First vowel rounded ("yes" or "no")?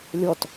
yes